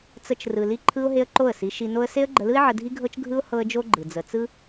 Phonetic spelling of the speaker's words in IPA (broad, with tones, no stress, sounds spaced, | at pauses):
t͡s ə˧ t͡ʃ r ɯ˨ l i˦ ǃʰ ɯ˦ ʊ̯ ɦ e˦ ə̯ ǃ o˦˨ ə̯ s i˨˦ ʃ i˧ n o˦ ə̯ s e˦ ə̯ ɡ͡ǃ ə˧ l ɯ˦ ɪ̯ ʕ ə˧ dʱ i˦ ɡʱ ɤ˦ t͡ʃ ɡʱ ɯ˦ ʊ̯ h ɤ˦ ə̯ d͡ʒ o˦ ɡ͡ǃ ɯ˨ d͡z ə˨ t͡s ɯ˦